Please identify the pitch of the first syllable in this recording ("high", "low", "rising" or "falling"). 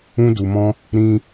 high